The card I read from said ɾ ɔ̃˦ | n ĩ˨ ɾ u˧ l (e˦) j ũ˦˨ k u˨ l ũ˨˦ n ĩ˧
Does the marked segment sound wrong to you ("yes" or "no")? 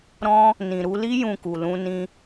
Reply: yes